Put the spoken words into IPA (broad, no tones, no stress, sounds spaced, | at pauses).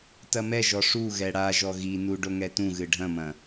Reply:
t ɐ m ɛ ʒ ɔ ʂ u ɣ ɛ ɽ a ʒ ɔ ɣ i n u ɖ o ŋ ɛ t ũ ɣ ɨ ɖʱ ɐ̃ m ɐ̃